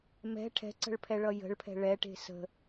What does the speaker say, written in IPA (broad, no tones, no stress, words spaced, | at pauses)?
mɛ̤ ʈʰɛ̤ǀə̤ɭpʰɛɭʌ jə̤ɭpʰɛ̤ ɭɛʈe̤ sə̤